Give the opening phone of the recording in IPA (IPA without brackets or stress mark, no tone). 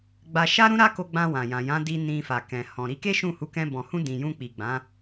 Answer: ɡ͡b